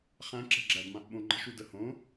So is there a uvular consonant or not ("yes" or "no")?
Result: yes